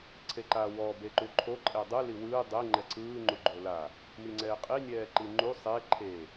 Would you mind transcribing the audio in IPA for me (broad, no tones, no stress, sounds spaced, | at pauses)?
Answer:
ǀʰ e ǃ a w ɔ b e ǃ u ǃʰ o ǃʼ ɛ dˤ ɯ l i w ɯː dˤ e ŋ͡ǃ ɛ ǀʰ ɯː ŋ͡ǃ u ɡ͡ǃ o l a | m i ŋ͡ǀ ɛː qʼ i nʲ ɛː ǃ i ŋ͡ǃ u sˤ e ǃʰ e